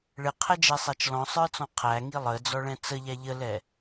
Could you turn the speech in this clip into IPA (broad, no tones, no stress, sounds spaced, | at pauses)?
ɭ ɪ qʰ ɛ d͡ʒ ɛ sˤ æ t͡ʃ l ɔ̃ sˤ ə˞ t͡s ɔ̃ qʰ æ ŋ i lˠ ə d͡z ɔ ɭ ɛ̃ t͡s ə ʎ æ ʎ ə l ɛ